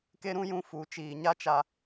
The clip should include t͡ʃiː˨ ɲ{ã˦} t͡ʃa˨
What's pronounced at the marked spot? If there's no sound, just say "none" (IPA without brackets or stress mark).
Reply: a˦